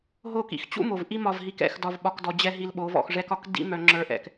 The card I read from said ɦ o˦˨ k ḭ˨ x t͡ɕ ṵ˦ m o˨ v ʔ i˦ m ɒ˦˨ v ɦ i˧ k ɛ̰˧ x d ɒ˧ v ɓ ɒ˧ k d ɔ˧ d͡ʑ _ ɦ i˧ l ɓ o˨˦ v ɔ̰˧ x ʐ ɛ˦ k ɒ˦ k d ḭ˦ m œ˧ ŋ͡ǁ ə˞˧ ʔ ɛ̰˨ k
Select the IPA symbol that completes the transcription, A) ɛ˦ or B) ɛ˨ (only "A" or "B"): A